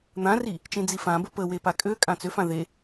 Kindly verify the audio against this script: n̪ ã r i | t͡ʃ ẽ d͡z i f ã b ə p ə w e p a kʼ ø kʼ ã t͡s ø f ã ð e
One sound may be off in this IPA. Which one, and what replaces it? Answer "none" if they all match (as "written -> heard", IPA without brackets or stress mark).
none